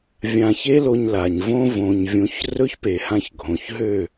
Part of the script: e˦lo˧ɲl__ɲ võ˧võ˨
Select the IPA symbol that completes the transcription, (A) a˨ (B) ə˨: A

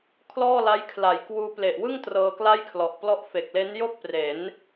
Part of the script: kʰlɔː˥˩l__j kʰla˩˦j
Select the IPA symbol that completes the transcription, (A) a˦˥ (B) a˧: A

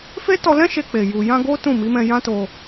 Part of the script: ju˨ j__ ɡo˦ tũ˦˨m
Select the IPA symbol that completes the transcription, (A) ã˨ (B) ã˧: B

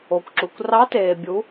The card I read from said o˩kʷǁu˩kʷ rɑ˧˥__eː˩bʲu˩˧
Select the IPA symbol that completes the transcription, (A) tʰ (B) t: B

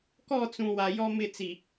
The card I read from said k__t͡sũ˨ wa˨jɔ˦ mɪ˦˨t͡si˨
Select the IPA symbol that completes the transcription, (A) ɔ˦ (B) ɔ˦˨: B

